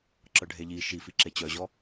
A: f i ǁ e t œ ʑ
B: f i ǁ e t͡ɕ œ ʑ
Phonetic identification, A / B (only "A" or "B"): B